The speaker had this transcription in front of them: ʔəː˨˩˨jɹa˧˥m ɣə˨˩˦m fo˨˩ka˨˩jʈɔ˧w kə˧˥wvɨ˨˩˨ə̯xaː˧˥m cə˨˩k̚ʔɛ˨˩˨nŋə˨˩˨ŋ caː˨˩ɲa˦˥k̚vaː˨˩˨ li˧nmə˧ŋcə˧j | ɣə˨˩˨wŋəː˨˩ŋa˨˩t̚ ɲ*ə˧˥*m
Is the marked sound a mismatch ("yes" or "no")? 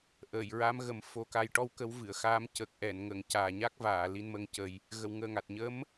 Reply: no